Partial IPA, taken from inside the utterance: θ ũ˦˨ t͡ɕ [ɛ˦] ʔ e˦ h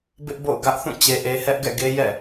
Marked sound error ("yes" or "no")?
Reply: yes